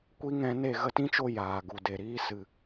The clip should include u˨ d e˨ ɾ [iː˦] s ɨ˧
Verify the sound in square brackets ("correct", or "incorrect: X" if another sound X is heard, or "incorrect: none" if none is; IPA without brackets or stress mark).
correct